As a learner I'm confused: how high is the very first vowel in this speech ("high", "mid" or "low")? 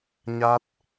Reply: low